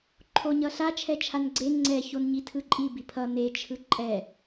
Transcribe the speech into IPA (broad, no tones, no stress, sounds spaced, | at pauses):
ǃʰ o ɲ ʌ ɬ a t͡ʃʰ ɛ t͡ʃʰ a n ɡ͡ǀ e ŋ͡ǀ ɛ ç o n ɲ i tʰ ɯ ǃʼ i b i pʰ ʌ n e t͡ʃʰ ɯ ǃʼ ɛ